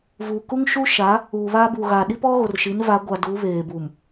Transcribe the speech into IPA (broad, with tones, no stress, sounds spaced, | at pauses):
v u˨ k u˦ ŋ ʃ u˦ ʃ a˨˦ | uː˨ β aː˦ b uː˨ ɣ a˨ ɗ i˦ p ɔ˦ ɣ o˨ r ʃ i˨˦ n v a˨˦ ɡʷ a˨ d u˨˦ β eː˨ b u˨ m